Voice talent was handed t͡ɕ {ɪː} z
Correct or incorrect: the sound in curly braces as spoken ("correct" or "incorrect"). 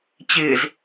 correct